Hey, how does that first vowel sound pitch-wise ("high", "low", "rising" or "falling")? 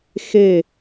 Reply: falling